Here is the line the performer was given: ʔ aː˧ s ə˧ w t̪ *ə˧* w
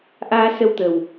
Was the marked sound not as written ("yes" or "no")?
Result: yes